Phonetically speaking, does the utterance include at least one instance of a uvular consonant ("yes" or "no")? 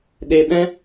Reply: no